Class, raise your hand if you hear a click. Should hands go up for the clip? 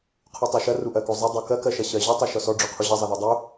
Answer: no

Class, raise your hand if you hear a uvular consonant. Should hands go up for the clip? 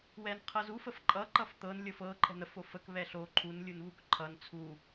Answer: yes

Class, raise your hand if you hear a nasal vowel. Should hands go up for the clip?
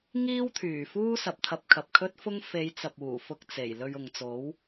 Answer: no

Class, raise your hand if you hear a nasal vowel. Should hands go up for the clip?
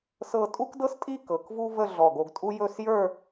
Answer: no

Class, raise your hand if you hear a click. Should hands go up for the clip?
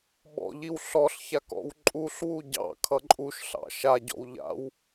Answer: yes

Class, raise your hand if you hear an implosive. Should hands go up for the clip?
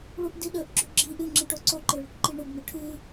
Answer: yes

